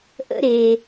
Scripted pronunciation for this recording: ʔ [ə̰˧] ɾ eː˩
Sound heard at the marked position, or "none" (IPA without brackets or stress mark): ə̰˧